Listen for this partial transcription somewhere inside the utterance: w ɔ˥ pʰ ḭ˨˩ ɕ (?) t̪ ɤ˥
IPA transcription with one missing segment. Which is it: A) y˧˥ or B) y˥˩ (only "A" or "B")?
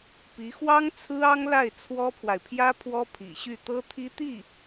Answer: B